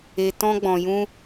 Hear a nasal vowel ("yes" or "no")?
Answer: yes